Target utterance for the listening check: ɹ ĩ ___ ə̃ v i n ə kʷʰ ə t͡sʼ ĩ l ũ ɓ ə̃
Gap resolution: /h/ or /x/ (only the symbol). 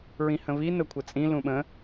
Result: h